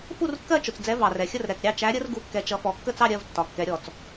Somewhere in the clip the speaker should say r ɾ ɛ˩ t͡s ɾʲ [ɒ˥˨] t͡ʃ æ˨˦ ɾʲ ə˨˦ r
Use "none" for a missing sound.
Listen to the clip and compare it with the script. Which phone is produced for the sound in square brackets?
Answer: ɑ˥˨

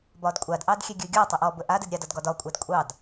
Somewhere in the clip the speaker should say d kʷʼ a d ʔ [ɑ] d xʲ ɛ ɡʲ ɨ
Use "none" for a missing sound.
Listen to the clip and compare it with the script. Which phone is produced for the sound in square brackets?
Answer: ɑ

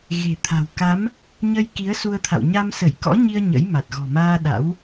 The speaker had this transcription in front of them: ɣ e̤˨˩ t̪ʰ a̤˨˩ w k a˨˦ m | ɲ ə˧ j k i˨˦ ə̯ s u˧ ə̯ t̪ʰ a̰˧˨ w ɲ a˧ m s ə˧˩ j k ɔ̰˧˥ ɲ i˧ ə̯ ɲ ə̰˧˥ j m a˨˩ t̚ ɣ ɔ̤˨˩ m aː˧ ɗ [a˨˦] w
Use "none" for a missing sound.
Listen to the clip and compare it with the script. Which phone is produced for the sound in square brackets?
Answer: a̰˧˥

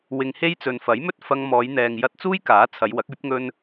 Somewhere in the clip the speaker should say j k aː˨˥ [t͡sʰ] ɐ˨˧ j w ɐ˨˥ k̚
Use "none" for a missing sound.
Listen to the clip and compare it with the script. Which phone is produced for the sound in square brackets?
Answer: t͡sʰ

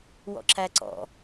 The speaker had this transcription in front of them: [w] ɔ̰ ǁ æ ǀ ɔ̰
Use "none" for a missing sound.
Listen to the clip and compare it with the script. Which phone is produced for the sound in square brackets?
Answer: w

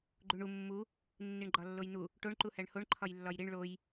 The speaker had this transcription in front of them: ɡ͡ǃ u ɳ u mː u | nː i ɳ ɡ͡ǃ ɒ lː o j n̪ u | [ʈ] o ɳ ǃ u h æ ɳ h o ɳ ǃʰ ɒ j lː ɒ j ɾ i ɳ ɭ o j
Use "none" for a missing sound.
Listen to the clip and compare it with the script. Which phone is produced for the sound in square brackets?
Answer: ʈ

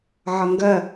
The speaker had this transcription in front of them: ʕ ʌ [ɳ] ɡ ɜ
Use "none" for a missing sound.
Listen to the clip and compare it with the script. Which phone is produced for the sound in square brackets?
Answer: ŋ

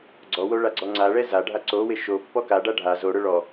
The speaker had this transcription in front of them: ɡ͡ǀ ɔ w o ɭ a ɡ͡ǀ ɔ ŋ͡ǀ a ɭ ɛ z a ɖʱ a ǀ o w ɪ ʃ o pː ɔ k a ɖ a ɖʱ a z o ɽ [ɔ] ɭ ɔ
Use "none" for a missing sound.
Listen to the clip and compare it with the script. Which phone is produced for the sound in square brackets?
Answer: ʊ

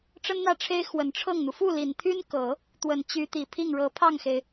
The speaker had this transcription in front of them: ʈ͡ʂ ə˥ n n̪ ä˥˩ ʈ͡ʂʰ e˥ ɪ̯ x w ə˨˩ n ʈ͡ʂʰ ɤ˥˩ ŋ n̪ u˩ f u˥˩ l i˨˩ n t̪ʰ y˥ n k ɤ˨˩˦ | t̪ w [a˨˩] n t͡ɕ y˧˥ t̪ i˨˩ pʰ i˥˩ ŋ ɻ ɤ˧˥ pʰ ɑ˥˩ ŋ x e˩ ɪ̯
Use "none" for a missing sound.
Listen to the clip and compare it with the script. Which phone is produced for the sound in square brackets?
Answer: ə˨˩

